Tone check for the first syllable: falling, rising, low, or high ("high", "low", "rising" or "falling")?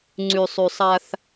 low